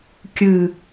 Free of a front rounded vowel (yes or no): yes